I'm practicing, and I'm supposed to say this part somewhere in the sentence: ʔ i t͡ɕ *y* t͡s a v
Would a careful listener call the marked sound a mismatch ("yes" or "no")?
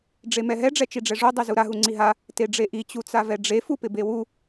yes